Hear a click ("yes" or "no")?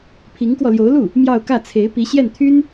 no